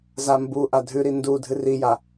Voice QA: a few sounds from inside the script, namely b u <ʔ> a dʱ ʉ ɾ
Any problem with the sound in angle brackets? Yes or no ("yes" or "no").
no